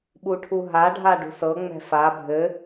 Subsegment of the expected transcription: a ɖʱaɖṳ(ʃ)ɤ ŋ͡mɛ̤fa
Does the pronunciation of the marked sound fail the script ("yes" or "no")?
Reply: yes